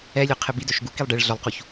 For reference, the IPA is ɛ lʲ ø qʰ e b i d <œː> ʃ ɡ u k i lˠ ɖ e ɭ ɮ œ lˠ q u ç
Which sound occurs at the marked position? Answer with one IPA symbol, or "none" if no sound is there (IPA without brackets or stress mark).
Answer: œ